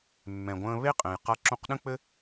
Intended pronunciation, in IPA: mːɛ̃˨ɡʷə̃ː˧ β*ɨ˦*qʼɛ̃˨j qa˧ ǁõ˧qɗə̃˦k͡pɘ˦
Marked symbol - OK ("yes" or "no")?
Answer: no